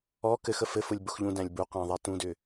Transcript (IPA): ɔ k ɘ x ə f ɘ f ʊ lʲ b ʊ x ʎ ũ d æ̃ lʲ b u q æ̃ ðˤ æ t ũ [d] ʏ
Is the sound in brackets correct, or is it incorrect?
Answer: correct